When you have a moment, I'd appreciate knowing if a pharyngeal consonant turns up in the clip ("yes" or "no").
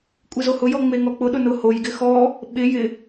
no